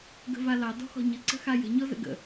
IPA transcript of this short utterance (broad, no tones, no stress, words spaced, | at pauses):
ɡə̤valɑ dɔ̤xɔ̤ɲəǀə̤ xajə̤ ɲɔzə̰ɡə̰